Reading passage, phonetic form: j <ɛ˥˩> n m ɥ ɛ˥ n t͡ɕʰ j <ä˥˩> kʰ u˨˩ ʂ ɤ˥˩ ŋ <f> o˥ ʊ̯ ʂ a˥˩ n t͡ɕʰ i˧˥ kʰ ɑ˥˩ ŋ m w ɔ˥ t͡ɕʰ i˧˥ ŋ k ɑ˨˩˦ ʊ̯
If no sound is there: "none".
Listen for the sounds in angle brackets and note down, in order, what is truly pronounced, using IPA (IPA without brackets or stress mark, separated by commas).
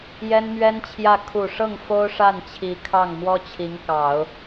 ɛ˥, ä˥˩, f